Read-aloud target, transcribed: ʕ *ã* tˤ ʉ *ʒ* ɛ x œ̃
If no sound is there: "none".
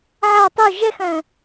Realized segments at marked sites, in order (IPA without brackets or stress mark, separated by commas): a, ʒ